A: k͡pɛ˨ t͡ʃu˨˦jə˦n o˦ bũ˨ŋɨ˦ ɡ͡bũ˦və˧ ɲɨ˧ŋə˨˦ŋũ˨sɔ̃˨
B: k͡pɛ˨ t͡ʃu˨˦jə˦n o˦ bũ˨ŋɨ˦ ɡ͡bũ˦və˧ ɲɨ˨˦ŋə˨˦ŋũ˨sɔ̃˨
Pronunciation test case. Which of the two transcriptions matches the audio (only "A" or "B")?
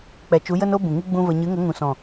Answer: B